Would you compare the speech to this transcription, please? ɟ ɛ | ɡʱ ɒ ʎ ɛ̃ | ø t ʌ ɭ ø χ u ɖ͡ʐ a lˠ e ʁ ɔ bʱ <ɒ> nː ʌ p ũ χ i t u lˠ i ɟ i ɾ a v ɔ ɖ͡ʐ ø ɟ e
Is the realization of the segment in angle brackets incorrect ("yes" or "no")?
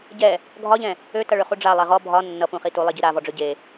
no